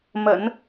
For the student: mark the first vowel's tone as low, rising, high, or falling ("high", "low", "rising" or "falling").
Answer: low